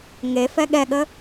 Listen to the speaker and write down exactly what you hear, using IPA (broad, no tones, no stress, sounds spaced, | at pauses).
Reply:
ŋ e f ɛ ɠ ɛ ɠ ə